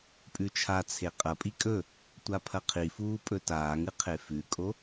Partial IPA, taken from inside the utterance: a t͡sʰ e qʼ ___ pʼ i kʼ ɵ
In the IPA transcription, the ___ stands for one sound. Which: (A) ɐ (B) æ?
A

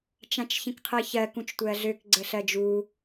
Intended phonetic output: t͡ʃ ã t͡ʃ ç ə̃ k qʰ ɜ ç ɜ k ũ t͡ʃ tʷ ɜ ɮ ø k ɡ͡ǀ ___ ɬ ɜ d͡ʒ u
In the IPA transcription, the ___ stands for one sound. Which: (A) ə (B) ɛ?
A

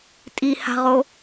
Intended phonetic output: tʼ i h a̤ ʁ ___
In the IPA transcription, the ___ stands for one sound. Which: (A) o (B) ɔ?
A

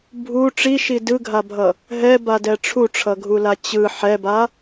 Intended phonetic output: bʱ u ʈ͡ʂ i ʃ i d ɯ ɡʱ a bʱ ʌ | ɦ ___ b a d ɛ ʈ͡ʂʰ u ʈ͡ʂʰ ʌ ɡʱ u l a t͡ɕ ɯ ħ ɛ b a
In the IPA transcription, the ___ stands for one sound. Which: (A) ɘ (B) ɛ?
B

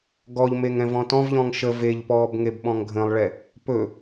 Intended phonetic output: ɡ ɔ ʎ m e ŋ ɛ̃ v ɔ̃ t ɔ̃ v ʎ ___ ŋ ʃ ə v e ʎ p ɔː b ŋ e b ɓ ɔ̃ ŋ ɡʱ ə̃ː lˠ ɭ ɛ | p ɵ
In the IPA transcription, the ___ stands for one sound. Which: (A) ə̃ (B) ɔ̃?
B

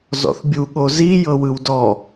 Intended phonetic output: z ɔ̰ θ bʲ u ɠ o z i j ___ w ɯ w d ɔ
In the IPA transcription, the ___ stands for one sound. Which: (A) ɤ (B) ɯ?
A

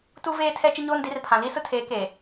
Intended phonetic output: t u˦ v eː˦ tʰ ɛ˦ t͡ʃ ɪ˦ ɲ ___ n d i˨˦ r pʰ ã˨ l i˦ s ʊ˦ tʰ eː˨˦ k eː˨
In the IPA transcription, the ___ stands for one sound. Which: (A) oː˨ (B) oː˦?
B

